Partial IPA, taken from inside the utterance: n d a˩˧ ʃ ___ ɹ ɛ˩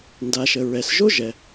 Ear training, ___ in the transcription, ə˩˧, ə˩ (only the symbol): ə˩